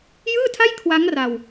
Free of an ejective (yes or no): yes